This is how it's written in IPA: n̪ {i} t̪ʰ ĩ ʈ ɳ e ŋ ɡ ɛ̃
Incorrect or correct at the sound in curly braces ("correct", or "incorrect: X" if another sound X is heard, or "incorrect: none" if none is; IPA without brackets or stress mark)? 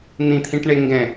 incorrect: ĩ